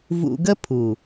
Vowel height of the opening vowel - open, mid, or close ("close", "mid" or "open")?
close